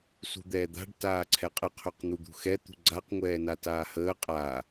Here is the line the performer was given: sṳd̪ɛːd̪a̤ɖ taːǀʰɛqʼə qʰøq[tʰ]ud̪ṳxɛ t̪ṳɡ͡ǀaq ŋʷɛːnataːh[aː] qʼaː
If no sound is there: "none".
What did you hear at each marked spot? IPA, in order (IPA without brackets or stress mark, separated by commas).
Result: n̪, əː